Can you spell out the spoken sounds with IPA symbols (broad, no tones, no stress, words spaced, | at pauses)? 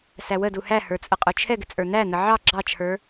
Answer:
sæwədu hæhə˞ t͡sʼəqʼʊt͡ʃʰɛɡɪ t͡sʼə˞n̪æn̪ə ʕɑ ɡ͡ǁɑt͡ʃʰə˞